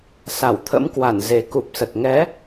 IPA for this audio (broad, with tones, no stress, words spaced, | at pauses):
sa˧˩wt̪ʰə̰˧˥mkwa˧˩n ze˨˩ku˨˩p̚sə˨˩t̚ ŋɛ˨˦